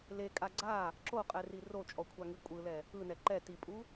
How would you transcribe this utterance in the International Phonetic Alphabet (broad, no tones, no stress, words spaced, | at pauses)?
lekʼa ɡ͡ǀa | ǁoqʼɛri rot͡ʃʼɔkʷʰaŋi kʷʼɯlɛ | ɯnɛ ǃɛ tipʼu